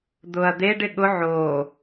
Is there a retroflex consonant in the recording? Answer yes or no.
yes